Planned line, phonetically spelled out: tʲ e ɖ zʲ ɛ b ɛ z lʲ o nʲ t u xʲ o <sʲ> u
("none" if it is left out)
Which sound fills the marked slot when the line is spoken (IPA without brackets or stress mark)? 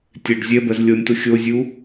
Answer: zʲ